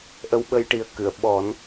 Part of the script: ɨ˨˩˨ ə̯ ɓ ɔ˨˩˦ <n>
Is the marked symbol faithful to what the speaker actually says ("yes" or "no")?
yes